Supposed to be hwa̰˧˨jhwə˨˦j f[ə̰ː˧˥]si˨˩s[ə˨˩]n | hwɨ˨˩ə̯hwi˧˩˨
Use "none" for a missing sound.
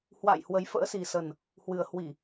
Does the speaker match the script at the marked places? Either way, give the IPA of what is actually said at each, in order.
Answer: ə̰ː˧˥, ə˨˩

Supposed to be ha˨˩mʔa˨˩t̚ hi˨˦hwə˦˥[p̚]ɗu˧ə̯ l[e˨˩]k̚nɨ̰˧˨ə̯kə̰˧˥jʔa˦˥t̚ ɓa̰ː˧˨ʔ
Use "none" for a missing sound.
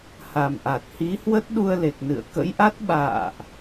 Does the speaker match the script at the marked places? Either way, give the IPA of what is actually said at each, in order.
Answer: t̚, e˨˩

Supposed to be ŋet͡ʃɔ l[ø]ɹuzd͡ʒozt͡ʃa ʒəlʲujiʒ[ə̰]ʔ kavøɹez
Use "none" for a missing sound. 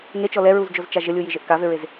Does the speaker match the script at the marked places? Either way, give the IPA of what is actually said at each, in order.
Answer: ɛ, ə

